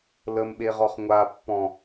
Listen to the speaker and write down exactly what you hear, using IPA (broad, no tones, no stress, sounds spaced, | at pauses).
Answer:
l ə m ɓ e ʁ ɔ χ ŋʷ a pː ɔ̃